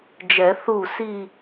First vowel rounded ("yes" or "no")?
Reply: no